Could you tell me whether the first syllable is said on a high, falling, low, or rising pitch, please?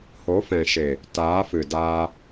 rising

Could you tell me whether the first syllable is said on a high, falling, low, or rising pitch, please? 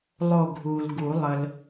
falling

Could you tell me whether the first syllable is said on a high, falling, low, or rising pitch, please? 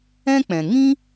high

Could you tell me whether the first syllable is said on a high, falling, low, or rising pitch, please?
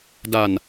low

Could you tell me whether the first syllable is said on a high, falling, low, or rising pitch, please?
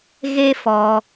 high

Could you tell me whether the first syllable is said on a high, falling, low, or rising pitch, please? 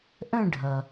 falling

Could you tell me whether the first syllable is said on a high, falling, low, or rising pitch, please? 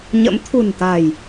rising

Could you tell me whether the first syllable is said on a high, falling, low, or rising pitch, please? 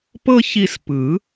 high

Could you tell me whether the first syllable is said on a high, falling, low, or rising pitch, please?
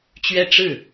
falling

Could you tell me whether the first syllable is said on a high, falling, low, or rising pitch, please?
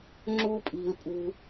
high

